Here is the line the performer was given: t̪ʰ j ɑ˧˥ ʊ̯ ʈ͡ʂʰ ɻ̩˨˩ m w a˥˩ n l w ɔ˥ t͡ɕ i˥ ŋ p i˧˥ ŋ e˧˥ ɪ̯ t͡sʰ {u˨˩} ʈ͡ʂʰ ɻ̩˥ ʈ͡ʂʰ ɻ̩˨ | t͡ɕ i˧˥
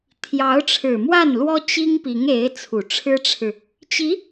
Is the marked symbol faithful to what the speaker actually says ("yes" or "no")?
yes